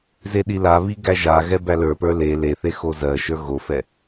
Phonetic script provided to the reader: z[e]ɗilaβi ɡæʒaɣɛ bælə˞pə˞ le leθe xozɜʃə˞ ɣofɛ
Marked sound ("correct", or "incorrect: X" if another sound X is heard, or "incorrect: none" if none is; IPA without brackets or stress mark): correct